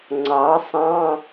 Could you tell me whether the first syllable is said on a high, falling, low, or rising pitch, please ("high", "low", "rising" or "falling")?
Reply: rising